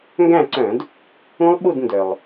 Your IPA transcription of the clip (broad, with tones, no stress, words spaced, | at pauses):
ŋɡæ̃˥˩ǀœ̃˧˩˧d | ũ˦˥lˠɓu˥˩d ndœ˩lˠ